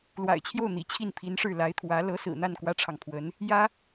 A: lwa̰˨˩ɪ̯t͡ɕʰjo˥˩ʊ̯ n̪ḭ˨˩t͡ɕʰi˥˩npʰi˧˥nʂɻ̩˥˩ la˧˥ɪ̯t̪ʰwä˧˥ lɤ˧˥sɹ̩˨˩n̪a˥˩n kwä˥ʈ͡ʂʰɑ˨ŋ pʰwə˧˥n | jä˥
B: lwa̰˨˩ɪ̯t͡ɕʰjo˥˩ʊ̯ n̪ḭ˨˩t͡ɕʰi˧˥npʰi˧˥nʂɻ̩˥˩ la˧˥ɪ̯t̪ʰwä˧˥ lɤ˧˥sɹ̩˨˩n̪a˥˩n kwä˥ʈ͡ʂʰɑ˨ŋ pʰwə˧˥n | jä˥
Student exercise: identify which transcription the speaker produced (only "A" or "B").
A